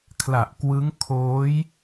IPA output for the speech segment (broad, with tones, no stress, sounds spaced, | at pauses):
kʰ l a˨˩ ʔ k w ɯ˦˥ ŋ kʰ oː˦˥ j